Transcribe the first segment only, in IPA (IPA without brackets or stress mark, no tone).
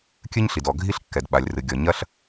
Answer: kʲ